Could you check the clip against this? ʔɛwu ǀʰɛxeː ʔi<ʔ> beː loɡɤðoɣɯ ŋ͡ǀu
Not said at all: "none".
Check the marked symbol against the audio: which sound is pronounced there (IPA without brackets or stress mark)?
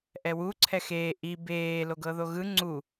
none